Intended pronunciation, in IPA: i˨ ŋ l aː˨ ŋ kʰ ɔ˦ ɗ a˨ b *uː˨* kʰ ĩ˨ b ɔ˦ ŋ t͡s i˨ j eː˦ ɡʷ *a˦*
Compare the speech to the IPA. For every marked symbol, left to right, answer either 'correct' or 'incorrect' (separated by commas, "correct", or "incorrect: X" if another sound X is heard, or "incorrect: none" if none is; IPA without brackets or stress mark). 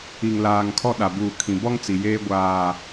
correct, incorrect: aː˦